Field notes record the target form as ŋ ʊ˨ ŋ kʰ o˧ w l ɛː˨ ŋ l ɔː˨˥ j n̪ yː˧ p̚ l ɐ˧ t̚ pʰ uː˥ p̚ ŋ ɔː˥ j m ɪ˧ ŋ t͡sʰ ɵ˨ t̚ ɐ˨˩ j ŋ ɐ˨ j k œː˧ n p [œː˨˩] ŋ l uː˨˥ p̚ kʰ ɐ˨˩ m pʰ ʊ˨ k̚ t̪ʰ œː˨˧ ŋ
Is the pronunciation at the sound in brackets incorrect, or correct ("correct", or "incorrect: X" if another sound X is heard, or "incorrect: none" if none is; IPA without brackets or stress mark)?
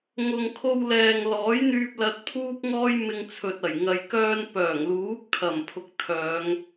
correct